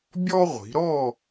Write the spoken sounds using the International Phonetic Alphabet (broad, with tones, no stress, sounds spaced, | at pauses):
bʲ ɔ˦ ʁʷ i̤˩˧ ɾ ɔ˥˨